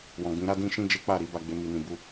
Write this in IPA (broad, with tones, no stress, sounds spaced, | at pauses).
w ɔ̃˨ ɡ͡b ĩ˨˦ ɾ a˦ d ĩ˦ ʃ ĩ˦ d͡ʒ e˦ k͡p a˦˨ ɾ i˨˦ b a˧ ɡ͡b e˧ m i˧ n ĩ˧ b u˦